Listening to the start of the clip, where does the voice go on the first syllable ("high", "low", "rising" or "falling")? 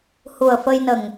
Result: low